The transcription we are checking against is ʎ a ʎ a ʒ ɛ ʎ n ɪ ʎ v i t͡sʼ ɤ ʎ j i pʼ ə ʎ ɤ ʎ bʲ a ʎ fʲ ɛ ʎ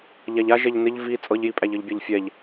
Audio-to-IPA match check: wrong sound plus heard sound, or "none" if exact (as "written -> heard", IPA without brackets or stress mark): ə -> æ